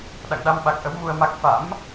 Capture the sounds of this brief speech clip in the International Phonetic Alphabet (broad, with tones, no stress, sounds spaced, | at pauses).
ɗ a̰˧˨ ŋ ɗ a˧ m ɓ a˨˩ k̚ ʔ ə˨˦ w m u˧ ə̯ m a˦˥ k̚ f a̰˧˥ m